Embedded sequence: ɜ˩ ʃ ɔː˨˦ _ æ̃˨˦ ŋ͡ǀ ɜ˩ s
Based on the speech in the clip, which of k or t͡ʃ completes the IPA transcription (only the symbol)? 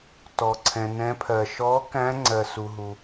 k